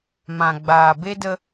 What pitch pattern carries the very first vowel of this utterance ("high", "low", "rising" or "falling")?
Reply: low